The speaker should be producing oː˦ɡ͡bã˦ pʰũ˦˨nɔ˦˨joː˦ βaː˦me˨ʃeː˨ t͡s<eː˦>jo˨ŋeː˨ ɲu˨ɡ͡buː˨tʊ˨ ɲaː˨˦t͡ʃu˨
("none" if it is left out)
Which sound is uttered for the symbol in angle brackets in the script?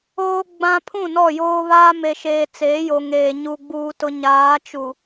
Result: eː˨˦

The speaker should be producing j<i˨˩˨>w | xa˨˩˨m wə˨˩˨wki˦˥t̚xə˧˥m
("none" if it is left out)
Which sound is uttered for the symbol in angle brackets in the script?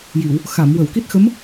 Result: i˨˩˨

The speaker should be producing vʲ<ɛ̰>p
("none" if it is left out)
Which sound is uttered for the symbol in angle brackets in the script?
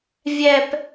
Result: ɛ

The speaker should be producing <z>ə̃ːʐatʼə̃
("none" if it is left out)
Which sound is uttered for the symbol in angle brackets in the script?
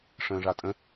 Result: ʂ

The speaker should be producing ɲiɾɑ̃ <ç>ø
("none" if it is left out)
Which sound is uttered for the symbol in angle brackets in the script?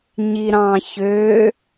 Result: ç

